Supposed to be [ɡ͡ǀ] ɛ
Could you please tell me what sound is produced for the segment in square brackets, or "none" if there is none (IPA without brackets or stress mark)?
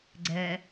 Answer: ɡ͡ǀ